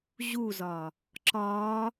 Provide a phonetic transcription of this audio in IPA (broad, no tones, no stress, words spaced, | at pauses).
ʑuzɒ | ǁɒ